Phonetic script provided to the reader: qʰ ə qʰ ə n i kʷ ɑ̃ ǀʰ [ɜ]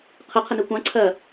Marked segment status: correct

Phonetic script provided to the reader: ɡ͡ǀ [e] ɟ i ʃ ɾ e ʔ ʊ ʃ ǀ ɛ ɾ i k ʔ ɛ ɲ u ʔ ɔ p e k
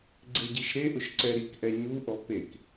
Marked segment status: correct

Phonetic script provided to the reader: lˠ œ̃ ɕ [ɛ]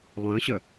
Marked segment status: incorrect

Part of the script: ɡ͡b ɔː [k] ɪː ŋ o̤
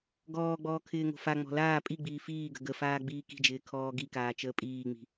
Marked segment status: incorrect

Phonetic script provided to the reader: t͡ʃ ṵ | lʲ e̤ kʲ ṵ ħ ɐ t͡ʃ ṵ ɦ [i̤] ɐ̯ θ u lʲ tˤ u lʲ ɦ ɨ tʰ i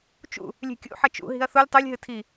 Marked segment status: correct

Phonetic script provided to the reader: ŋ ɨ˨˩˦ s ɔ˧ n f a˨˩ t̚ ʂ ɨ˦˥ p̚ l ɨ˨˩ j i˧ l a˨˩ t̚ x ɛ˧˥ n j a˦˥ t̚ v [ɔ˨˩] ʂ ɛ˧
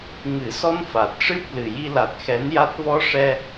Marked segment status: incorrect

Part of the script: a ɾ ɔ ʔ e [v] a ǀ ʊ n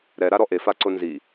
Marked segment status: incorrect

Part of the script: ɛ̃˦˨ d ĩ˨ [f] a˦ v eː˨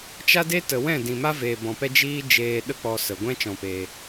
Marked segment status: incorrect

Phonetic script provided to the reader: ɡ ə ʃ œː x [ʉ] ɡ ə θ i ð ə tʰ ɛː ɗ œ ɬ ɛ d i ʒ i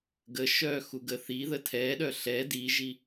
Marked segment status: incorrect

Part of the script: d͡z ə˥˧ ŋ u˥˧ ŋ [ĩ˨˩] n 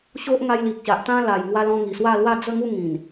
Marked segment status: correct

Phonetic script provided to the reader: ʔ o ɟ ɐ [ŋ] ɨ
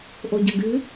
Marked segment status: incorrect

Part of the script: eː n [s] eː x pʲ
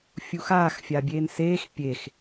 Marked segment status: correct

